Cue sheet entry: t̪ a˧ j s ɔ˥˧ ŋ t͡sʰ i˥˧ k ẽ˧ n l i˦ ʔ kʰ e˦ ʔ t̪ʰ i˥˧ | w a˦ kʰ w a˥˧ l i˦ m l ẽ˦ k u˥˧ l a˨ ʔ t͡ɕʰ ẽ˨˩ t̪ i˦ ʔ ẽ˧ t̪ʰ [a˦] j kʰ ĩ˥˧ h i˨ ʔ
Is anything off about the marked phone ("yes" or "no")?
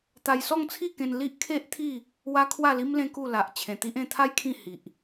no